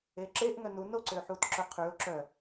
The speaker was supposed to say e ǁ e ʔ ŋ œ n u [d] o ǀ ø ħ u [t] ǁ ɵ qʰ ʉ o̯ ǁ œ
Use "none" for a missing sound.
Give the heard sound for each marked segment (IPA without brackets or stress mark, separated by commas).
n, t